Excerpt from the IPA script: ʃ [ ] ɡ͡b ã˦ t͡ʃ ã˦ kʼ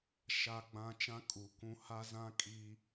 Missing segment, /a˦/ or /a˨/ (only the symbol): a˦